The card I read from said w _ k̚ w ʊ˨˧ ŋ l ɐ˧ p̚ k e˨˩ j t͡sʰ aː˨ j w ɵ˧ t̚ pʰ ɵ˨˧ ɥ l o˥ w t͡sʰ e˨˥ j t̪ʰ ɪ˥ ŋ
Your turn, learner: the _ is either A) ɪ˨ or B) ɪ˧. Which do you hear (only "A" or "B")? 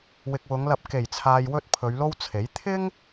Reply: A